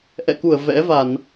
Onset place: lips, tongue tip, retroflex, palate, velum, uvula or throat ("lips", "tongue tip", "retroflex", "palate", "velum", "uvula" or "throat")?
throat